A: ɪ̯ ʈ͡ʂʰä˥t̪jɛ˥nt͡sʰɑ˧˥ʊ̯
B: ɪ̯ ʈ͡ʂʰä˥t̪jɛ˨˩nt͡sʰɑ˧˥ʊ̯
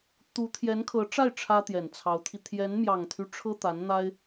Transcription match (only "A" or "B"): B